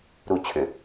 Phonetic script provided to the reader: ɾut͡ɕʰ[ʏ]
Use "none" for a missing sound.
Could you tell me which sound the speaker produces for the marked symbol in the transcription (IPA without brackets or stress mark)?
ʏ